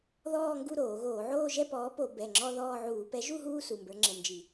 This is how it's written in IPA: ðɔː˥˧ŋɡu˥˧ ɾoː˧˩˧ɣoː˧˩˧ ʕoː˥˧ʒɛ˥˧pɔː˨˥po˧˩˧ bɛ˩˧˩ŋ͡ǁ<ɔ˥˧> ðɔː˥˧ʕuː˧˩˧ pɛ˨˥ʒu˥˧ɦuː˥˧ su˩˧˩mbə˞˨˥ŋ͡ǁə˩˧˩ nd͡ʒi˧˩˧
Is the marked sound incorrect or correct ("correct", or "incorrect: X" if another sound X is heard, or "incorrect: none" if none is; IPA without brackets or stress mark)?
correct